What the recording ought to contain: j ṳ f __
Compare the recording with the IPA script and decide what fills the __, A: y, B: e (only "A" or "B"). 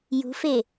B